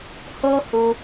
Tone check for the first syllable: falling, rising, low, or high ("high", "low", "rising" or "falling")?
high